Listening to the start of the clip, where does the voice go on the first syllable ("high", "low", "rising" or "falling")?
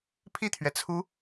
falling